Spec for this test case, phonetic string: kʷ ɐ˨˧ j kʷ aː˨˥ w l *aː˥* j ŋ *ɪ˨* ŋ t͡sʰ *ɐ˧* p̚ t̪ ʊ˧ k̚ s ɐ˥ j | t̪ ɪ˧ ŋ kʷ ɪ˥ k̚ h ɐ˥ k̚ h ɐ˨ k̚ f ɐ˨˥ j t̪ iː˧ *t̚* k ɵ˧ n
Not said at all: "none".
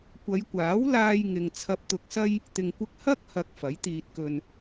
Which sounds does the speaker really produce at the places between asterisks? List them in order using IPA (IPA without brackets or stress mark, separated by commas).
aː˧, ɪ˨, ɐ˧, t̚